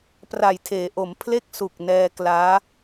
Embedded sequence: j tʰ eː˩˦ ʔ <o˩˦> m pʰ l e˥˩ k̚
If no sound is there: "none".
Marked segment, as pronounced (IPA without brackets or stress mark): o˩˦